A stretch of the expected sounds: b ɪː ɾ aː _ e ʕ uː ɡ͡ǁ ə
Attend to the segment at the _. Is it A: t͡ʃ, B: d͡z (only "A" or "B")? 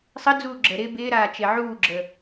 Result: A